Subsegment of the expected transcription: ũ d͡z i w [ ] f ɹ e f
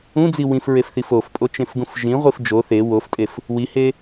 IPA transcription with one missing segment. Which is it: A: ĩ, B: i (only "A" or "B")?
A